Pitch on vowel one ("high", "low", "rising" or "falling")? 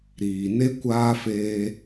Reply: low